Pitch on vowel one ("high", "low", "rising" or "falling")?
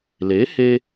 rising